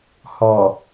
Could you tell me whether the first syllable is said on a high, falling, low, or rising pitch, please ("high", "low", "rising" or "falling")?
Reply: low